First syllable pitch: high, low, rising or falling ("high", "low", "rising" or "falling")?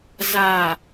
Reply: low